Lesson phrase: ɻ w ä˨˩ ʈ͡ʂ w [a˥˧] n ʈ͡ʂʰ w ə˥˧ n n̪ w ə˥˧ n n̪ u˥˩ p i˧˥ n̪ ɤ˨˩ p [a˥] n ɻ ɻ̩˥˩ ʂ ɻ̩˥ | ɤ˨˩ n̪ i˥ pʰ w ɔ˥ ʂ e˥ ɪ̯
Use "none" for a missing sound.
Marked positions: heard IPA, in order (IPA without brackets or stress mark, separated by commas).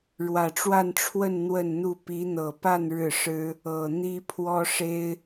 a˥˧, a˥˧